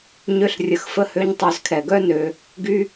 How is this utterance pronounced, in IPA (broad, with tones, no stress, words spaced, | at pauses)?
ɲø˦ɬrʲə˧x fə˦hø˦ɲtˤø˧z kʰɛ˨ɡœ˦ nø˧ | ɡy˦